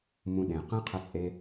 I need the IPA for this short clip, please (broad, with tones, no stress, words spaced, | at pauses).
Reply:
mũ˧ɗẽ˨ qẽ˦qʰə˧t͡sʼe˧